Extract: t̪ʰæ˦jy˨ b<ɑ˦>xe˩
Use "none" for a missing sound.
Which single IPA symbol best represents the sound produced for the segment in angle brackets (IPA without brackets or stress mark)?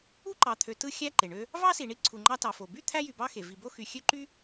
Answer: ɑ˦